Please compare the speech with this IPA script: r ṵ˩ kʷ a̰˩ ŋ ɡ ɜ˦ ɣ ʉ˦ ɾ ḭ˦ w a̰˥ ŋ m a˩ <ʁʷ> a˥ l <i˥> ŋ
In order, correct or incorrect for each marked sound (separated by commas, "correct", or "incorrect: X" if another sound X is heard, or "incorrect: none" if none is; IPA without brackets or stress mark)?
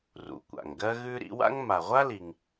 correct, incorrect: i˩